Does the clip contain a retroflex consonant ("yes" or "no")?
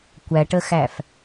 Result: yes